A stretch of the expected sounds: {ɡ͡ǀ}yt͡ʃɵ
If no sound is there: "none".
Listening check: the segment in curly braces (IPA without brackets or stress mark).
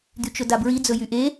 d̪